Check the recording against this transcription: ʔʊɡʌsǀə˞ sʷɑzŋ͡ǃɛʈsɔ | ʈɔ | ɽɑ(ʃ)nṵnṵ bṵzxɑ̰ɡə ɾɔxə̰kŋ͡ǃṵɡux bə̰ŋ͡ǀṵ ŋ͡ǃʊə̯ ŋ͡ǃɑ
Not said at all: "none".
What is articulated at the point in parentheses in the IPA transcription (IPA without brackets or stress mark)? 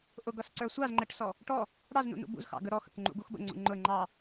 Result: z